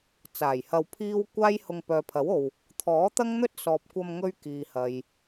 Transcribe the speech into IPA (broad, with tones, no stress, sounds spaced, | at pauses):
t͡s aː˨˩ j h ɐ˧ w pʰ iː˥ w kʷ aː˥ j h ʊ˧ ŋ p œː˨ pʰ ɐ˨˥ w o˨ w | t̪ʰ ɔː˨˥ t̪ ɐ˥ ŋ n̪ ɵ˥ t̚ s ɔː˨ p̚ kʷ ɐ˧ m ŋ ɵ˧ ɥ k iː˨ h ɐ˨ j